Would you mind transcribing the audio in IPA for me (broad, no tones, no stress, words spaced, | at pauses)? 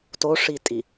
toʂitʼi